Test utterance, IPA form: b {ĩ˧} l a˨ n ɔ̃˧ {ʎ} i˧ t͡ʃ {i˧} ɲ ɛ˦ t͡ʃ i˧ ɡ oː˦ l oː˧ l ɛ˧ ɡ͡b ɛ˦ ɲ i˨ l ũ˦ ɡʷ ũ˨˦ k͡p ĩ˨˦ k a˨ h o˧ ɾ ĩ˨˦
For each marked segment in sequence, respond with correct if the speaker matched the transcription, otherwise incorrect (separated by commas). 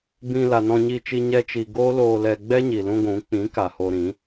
correct, incorrect, correct